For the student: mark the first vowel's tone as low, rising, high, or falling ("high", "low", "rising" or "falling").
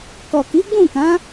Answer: low